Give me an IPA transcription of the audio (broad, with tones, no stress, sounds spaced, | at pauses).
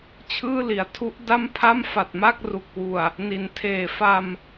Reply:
t͡ɕʰ ɯː˥˩ l i˩˦ a̯ tʰ u˦˥ ʔ d a˥˩ m pʰ a˥˩ m f a˨˩ t̚ m a˥˩ k̚ r u˨˩ k̚ w u˨˩ a̯ | n i˩˦ n tʰ eː˨˩ f a˧ m